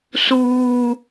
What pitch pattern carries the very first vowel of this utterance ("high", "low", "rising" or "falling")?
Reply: high